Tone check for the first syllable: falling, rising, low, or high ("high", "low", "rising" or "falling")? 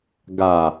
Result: low